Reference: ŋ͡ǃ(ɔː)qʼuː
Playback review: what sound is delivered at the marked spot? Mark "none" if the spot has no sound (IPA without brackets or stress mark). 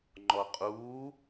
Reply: ɔ